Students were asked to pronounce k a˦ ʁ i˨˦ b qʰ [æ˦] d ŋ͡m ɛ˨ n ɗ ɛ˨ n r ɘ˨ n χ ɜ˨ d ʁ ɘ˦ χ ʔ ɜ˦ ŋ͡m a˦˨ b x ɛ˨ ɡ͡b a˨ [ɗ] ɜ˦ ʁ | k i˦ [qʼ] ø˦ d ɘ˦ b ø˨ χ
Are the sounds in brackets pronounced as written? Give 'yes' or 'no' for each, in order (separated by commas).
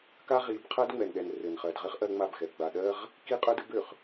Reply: no, yes, yes